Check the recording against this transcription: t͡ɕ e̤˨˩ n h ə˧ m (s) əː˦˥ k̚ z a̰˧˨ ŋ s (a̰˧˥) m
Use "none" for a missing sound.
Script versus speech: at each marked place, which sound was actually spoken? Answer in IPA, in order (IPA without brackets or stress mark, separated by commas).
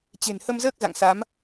z, a˨˦